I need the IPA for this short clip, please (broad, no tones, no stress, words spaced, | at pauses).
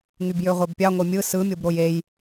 ŋybjøʁʷebpʲɑ ŋʷemʲɯ sɯmʲobɾoj ej